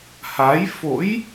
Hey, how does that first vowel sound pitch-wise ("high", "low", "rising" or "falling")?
rising